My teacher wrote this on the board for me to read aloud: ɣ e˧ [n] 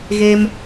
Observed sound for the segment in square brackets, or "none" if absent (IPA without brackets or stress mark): m